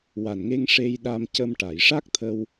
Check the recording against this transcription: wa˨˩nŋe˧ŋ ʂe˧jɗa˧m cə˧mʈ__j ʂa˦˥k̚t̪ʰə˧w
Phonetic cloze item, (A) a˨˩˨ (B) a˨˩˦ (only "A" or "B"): A